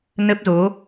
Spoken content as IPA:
n ə˦˥ p̚ z o˨˦

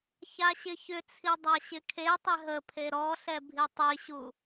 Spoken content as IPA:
ç a ɕ ɪ ç ʏ t͡sʰ i dˤ a ɕ ɪ kʰ e tˤ ɪ ɦ ə pʰ e ɾ ɔ ɬ ɛ bʱ i tˤ i ɕ u

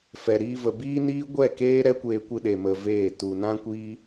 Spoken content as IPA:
f ɛ˨ ɾ iː˧ v ə˨ b iː˦ n iː˦ ɡʷ ɛ˦˨ k eː˦ ɾ ɛ˦ kʷ eː˧ kʷ ɨ˧ ɗ e˨ m ə˧ v eː˦˨ t u˧ n ã˦ kʷ iː˦

